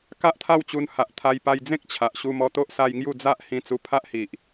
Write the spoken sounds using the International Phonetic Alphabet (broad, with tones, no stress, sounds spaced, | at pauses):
k a˦ ʔ t̪ʰ a˥˧ w t͡ɕ u˧ n h a˨ ʔ t̪ʰ a˧ j p a˧ j d͡z ẽ˦ k̚ t͡ɕʰ a˨ ʔ ɕ u˧ m ɔ˧ t̪ o˦ ʔ s a˧ j ŋ j u˥˧ d͡z a˦ ʔ h ĩ˧ t͡s u˧ pʰ a˦ ʔ h i˨ ʔ